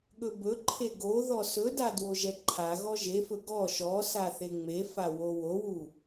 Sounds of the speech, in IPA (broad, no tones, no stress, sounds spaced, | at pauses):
ɠ ɵ b ɵ ǃʰ e ɡ o ð ɔ s ɵ d a d w o ʒ ɛ ǃʰ a ɣ ɔ ʒ e f ɵ ɡ ɔ ʃ ɔ s a θ e ŋ͡m e f a w o w o w u